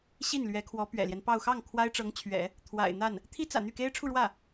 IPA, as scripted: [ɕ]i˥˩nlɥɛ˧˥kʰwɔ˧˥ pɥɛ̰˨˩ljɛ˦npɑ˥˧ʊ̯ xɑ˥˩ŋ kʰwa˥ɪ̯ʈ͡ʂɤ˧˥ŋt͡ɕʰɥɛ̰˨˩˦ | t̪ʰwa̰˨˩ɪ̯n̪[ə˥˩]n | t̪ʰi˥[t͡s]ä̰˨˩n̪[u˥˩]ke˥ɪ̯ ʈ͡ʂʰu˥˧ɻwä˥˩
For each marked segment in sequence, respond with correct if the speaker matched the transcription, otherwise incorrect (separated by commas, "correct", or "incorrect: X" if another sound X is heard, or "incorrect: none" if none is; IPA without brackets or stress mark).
correct, incorrect: a˥˩, correct, incorrect: y˥˩